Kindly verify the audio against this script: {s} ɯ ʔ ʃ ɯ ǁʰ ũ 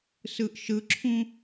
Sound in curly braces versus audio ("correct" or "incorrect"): correct